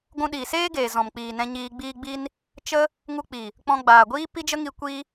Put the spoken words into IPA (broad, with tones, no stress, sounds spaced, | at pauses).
ɡʷ ũ˧ ɗ iː˨ s eː˦ ɡ eː˨ z ɔ̃˨ m k͡p iː˨ n ɛ̃˧ ɲ iː˧ ɡ͡b iː˦ ɡ͡b i˦ n | t͡ʃ ə˦ | ŋ u˧ k͡p i˨ | k͡p ɔ̃˧ ɡ͡b aː˨ ɡʷ iː˦ p i˦ d͡ʒ ə˦ ŋ i˧ kʷ i˦